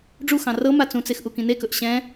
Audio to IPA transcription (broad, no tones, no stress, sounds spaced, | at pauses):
ɖ͡ʐ u x ɑ̃ r ɤ m a t͡s ũ t͡s e x ʔ u k ĩ n e k ɵ ʔ ɕ ɛ̃